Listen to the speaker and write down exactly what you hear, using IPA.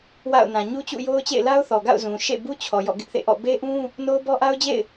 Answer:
w a̰˦˨ ʊ̯ n ã˨ ɲ u˦ t͡ɕ ṵ˦˨ j o˦ ʊ̯ t͡ɕ ḛ˦˨ ɪ̯ l a˦ ʊ̯ θ ɔ˨ ɡ a̰˦˨ ʊ̯ z ũ˨ ʃ ḛ˦˨ b u˦ t͡ɕʰ ɔ˨ j ɔ̰˦˨ ɡ ɪ˦ ʔ θ ḛ˦˨ ʔ ɔ̰˦˨ b e˦ ʔ ũ˦ | n o˦ ʊ̯ b ɔ˦ ʔ a˦ ʊ̯ d͡ʑ ḛ˦˨ ɪ̯

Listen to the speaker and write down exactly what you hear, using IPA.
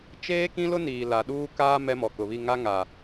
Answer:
t͡ʃ eː˦ k ĩ˦ l ʊ˦ n iː˨ l a˨ ɗ uː˦ k aː˦ m ɛ˦ m ɔ˨ k ʊ˨ β i˦˨ ŋ a˦ ŋ a˨

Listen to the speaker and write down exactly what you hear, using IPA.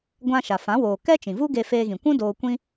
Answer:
ɡʷ ã˧ ʃ a˨ f ã˨˦ w oː˨ k ɛ˦ t͡ʃ ĩ˨ v u˦ ɡ e˧ f eː˧ ɣ ĩ˨ kʷ ũ˦ d oː˧ kʷ ĩ˦

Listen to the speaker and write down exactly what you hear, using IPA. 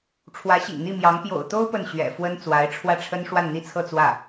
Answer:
ʈ͡ʂʰ w ä˧˥ ɕ ḭ˨˩ ŋ n̪ i˥˩ m j ɑ˧˥ ŋ p j o̰˨˩ ʊ̯ t̪ o˥ ʊ̯ p ə˥˩ n ɕ ɥ ɛ̰˨˩ f w ə˥ n t͡s w a˧˥ ɪ̯ ʈ͡ʂʰ w ä˥˩ ʈ͡ʂʰ ə˥ n ʂ w a˥˧ n n̪ i˥˧ t͡sʰ ɤ˥˧ t͡s w ä˥˩

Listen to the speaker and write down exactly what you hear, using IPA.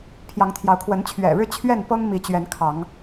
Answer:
pʰ j ɑ˨˦ ŋ t̪ʰ j ɑ˨˦ ʊ̯ kʰ w ə˨˦ n t͡ɕʰ ɥ ɛ̰˨˩ ɻ ɻ̩˥˨ t͡ɕʰ ɥ ɛ˥˨ n p ɤ˦ ŋ m i˨˦ t͡ɕ ɥ ɛ˨˦ n kʰ ɑ˨˦ ŋ

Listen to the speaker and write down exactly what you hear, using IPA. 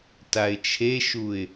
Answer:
t a ɪ̯ t͡ʃʰ e ʃ u ɪ̯

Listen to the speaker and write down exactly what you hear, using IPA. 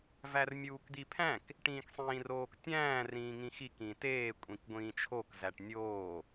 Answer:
v æ r mʲ uː k d̪ i pʰ æ̃ k | ʈ ĩː k sˤ ĩː r oː k tʲ æ̃ː r ĩː ŋ ĩ x i k ĩ t eː kʷʼ ĩ k ɡʷ ĩː t͡ʃʰ o k z æ ʈ nʲ oː

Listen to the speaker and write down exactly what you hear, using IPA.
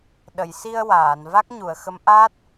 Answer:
ɗ ə˨˩˨ j s i˧ ə̯ w aː˨˩˨ n v a˦˥ k̚ ɲ u˨˩˨ ə̯ x ə˧˥ m ʔ aː˦˥ t̚

